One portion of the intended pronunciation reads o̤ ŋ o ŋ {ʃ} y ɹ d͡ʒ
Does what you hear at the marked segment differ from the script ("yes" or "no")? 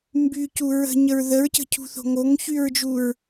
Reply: yes